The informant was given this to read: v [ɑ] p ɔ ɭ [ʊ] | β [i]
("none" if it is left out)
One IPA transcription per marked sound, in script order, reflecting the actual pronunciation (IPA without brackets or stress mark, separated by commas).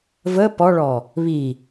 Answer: ə, ɔ, i